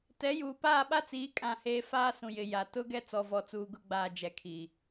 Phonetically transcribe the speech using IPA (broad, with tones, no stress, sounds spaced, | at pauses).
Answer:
t ɛ˨˦ j uː˨ p aː˦˨ ɓ a˦ t͡s iː˨˦ kʼ ã˦˨ h eː˦ f aː˦ s ũ˨ j ɪ˨ j a˨ t ʊ˦ ɡ ɛ˦ t͡s ɔ˨ v ɔ˨ t͡s uː˨ ɡ ʊ˦˨ ɡ͡b aː˨ d͡ʒ ɛ˨ kʰ i˨